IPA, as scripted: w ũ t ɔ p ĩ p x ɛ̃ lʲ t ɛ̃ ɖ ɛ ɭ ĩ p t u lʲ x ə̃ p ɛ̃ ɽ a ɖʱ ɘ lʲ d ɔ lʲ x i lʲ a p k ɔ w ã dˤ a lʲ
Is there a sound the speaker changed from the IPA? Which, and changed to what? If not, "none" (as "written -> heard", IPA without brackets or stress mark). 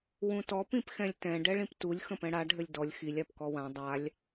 none